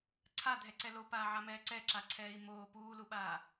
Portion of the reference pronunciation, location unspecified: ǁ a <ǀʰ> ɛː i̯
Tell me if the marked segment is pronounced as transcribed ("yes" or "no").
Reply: yes